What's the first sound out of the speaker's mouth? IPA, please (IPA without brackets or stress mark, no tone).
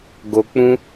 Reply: ɡ